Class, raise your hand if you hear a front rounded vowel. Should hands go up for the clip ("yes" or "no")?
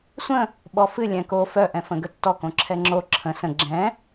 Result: yes